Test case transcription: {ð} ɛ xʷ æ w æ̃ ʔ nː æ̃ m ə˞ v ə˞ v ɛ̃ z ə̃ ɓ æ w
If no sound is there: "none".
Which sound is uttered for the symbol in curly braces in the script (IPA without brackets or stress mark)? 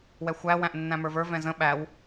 w